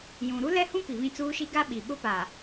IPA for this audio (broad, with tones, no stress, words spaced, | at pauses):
jũ˨ ɾu˦lɛ˦hũ˦ pi˨βĩ˦t͡suː˦ʃi˦ ɡa˦ɓi˨ ɓʊ˦pa˨